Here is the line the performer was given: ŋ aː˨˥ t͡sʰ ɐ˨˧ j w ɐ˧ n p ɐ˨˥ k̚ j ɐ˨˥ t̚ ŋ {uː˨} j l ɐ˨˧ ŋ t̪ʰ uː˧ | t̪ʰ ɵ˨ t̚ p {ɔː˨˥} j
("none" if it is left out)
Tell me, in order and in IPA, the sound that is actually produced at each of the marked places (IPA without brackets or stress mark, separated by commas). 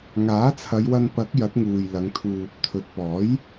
uː˨, ɔː˨˥